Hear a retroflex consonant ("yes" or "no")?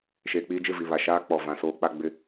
no